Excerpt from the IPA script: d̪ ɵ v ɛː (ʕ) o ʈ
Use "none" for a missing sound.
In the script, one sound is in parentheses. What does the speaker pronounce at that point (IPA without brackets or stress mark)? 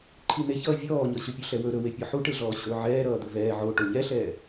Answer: ʕ